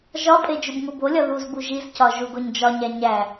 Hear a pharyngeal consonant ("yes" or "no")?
no